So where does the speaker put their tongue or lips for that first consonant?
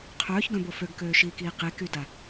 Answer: uvula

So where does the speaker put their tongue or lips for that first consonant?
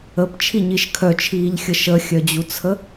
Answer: lips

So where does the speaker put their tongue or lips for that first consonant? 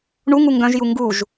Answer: retroflex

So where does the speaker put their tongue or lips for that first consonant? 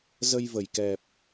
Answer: tongue tip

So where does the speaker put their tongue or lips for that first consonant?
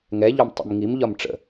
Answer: velum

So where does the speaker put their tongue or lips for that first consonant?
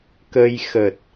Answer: velum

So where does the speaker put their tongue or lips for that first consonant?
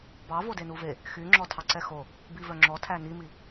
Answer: lips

